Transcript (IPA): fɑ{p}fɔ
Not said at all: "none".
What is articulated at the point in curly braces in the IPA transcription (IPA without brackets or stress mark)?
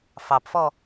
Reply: p